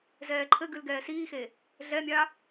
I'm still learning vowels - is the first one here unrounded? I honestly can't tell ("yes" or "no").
yes